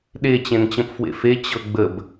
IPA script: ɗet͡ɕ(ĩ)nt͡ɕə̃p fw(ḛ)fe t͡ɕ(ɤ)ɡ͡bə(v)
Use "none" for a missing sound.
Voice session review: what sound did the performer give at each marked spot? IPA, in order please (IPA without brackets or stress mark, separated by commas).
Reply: ẽ, ḛ, ɤ, b